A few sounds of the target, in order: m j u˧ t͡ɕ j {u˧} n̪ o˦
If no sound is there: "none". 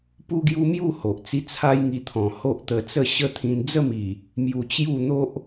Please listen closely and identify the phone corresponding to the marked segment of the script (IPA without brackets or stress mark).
u˥˧